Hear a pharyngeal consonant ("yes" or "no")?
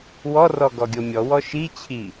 no